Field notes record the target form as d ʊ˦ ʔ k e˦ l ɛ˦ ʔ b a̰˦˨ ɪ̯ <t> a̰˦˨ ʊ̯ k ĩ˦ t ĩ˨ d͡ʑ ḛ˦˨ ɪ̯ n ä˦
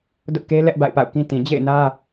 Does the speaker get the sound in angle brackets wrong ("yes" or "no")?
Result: yes